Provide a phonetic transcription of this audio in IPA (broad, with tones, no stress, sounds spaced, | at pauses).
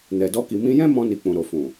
n ɛ˨ d ɔ˧ k i˨ m ĩ˧ j ɛ̃˦ m ɔ̃˧ n i˨ k͡p ũ˨ ɾ o˨ f ũ˨